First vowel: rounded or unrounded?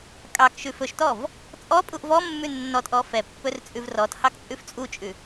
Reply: unrounded